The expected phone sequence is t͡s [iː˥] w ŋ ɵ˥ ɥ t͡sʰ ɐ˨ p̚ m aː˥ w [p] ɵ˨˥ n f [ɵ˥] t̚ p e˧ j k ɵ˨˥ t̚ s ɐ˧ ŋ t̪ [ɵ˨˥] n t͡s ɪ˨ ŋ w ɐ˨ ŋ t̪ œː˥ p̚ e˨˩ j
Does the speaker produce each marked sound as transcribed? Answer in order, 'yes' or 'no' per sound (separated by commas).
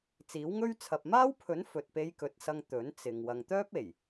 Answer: no, no, no, yes